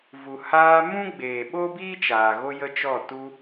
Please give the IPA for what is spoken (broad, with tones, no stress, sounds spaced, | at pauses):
v u˨ h aː˧ m ũ˦ ɡ͡b eː˨ ɓ o˦ b iː˦ t͡ʃ aː˨ ɣ o˦ j ə˦ t͡ʃ ɔ˦˨ t u˧